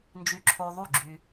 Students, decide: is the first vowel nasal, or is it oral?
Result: oral